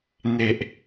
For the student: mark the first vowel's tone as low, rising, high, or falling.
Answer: low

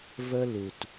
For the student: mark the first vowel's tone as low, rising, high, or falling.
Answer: high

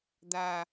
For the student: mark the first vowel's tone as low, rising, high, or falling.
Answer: low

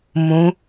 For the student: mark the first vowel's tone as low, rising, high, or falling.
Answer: rising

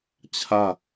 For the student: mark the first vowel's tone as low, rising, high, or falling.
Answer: falling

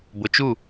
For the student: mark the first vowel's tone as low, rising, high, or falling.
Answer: low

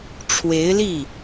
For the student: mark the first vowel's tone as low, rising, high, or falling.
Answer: rising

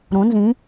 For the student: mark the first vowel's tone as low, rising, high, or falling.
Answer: rising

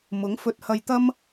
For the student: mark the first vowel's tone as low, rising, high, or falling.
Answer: rising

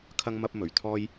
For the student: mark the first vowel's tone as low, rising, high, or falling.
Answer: high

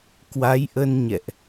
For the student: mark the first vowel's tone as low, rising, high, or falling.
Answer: rising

